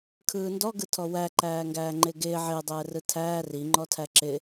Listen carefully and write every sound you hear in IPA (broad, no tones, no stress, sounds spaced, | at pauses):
kʰ ɯː n d ɔ ɡ ɯ tʰ ɔ w æ ǃ æː ŋ ɡ æː ŋ͡ǃ ɪː ɡ ɪː ʕ ɪː dˤ ɛː r ɯ tʰ æː r i ŋ͡ǃ ɔ tʰ æ ǁ ɪ